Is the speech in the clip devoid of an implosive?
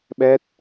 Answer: no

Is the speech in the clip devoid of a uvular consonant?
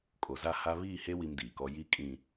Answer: yes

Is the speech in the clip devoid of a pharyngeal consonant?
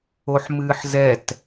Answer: no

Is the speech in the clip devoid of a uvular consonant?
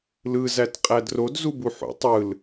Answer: no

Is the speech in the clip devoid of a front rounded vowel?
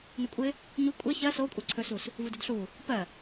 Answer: yes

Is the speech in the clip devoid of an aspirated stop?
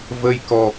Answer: yes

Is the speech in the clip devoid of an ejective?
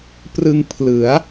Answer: yes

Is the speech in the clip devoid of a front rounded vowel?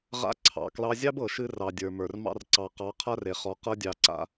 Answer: yes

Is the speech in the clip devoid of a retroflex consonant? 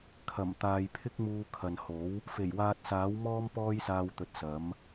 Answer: yes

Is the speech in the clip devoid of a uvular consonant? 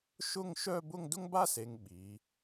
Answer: yes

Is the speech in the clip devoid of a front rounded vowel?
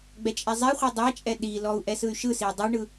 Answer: no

